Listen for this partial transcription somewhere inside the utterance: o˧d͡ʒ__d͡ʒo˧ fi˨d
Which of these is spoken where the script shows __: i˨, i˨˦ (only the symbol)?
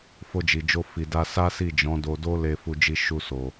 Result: i˨